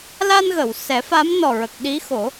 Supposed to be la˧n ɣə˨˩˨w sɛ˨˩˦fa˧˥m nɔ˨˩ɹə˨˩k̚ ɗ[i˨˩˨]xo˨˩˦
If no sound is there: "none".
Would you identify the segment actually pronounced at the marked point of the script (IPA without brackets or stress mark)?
i˧˥